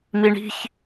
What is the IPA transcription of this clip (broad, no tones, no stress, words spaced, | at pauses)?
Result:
miɳi̤ç